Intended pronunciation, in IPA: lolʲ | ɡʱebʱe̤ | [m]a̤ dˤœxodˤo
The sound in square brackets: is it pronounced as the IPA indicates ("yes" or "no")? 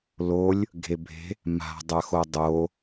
yes